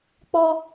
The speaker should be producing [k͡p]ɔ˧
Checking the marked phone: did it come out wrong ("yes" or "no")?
no